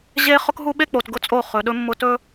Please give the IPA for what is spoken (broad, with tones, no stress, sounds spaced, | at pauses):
ʑ e˦ χ ʊ˦ k ɦ u˦ ɓ e˦ k͡p o˨ t ɡ ʊ˦ t͡sʼ o˦˨ χ ɵ˨ ɗ ɵ˦ mː ʊ˦ t ɵ˦